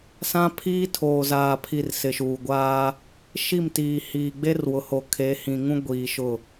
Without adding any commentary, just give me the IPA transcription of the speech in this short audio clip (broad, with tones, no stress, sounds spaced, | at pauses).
s ã˦ pʰ iː˦ tʰ oː˨ z aː˨ pʰ i˨ r s ɪ˨ ʃ uː˨ ɡʷ aː˦ | ʃ i˦˨ m t iː˨ h iː˨ ɡ͡b e˦ r w ʊ˨ h o˨ kʰ e˨˦ h ĩ˨ ŋ ũ˦ ɡʷ iː˨ ʃ ʊ˦˨